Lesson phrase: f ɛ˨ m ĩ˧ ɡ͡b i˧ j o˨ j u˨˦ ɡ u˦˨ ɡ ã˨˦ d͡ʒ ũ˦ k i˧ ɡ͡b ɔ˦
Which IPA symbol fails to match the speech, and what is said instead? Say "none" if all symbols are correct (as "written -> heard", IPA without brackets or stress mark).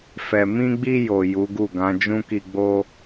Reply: ɔ˦ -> o˦